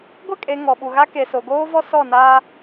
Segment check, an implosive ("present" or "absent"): present